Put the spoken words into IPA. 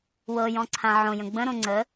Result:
w ɤ j ɔ̃ ǀʰ ã ʕ õ j ə̃ ɡ͡b ə̃ ɾ õ ŋ͡ǀ ə

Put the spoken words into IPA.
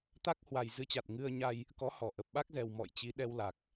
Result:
t̪ a˦˥ k̚ h w a˨˩ j z ɨ˨˦ t͡ɕ a˨˩ t̚ ŋ ɨ˧ ə̯ ɲ a˧ j | k ɔ˨˦ h ɔ˧˩ ʔ ə˨˩ p̚ ɓ a˦˥ k̚ z ɛ˨˩ w m ɔ̰˧˨ j t͡ɕ i˨˦ ɗ ɛ˧ w l a˨˩ k̚

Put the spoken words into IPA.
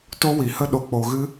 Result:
t o˦ w i˨ h ə˦ ɗ o˨ k͡p o˨ ɣ ɨ˧

